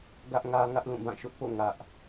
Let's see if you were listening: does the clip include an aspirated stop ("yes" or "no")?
no